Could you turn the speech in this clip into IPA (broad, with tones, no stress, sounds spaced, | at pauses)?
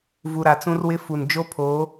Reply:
v u˨ ɾ a˨ t͡s ũ˦ r w ɪ˦ f u˨ n d͡ʒ o˦ pʰ oː˨˦